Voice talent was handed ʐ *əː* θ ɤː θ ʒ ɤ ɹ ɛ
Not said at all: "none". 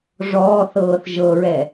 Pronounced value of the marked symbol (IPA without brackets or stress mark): ɔː